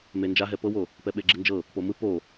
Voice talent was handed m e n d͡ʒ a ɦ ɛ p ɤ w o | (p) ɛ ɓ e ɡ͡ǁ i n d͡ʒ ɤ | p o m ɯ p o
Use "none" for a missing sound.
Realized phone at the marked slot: p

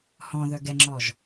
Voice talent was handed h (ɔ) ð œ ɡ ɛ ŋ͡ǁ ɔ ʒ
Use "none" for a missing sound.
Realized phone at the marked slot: ɔ̃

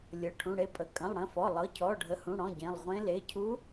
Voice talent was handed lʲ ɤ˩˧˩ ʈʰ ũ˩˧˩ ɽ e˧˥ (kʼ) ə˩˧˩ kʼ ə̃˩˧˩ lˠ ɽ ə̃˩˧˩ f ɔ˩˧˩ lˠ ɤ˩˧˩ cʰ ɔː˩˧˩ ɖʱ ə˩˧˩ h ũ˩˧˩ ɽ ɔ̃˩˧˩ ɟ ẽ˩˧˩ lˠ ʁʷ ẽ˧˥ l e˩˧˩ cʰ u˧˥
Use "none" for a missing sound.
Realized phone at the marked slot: pʼ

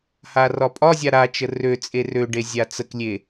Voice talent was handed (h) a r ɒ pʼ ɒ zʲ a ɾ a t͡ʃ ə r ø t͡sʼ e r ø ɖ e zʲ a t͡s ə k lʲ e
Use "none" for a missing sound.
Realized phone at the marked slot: h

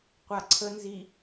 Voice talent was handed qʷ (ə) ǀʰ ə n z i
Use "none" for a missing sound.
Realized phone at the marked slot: a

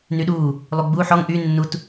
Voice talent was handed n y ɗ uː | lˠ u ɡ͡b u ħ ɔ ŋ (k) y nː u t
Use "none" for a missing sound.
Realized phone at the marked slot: ʔ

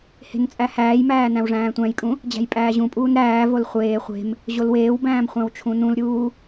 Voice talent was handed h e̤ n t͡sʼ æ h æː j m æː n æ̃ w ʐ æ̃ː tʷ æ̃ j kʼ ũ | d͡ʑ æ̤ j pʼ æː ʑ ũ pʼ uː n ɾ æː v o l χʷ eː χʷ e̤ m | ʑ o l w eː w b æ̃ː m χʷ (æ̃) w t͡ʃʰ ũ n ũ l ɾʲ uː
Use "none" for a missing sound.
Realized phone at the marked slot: æ̃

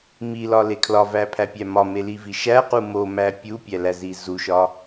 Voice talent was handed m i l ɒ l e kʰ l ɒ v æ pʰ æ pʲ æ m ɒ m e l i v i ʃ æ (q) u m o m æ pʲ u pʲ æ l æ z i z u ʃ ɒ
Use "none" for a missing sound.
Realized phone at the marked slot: q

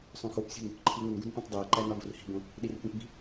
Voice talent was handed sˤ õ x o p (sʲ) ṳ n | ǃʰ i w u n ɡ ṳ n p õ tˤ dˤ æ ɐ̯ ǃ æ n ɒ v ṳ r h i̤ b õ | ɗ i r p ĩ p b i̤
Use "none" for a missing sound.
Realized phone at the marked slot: sʲ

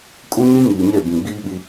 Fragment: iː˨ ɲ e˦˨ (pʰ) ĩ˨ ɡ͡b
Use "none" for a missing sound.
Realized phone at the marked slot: b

